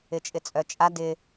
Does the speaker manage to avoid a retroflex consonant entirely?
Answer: yes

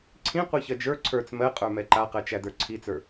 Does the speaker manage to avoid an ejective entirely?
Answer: no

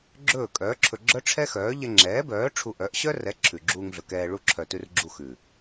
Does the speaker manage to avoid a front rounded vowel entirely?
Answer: no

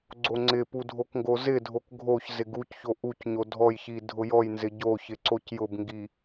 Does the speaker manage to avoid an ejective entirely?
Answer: yes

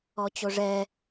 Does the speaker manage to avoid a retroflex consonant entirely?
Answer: no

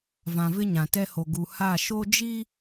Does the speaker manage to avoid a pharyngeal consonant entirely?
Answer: yes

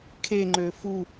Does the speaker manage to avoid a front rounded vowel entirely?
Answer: no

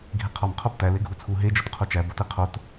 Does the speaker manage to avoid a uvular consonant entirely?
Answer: no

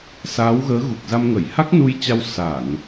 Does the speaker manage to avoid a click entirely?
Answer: yes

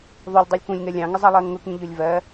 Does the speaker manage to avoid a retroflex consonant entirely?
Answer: yes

